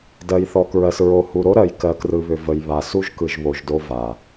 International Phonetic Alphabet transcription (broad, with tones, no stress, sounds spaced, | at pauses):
d ɜ˨ j θ ɔ˨ k ɹ ɜ˨ s ɹ o˨ h u˨ ɾ o˦ ɾ ɜ˨ j k ɜ˨ k r ɯ˨ β ʏ˨ v ə˨ j β a˨ s u˦ ʒ k ɯ˨ ʒ β o˨ ʒ d o˦ v a˨